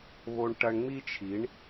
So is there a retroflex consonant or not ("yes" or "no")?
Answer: yes